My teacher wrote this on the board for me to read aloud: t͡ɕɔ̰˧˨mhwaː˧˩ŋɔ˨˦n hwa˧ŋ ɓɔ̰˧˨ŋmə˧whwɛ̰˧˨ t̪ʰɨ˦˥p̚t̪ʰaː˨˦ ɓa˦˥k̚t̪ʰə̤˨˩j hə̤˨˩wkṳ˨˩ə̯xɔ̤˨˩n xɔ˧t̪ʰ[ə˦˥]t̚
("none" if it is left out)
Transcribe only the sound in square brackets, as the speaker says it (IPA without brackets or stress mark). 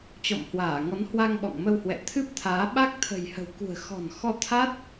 a˦˥